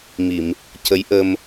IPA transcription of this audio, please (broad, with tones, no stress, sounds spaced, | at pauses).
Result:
m i˨˩˨ m | c ə˧˥ j ʔ ə˧ m